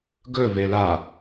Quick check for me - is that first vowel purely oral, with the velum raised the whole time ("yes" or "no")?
yes